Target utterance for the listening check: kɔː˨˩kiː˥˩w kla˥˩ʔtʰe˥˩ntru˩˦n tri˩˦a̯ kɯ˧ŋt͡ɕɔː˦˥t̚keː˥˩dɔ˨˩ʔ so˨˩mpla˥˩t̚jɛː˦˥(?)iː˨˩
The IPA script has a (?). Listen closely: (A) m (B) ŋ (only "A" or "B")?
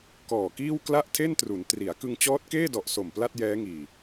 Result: B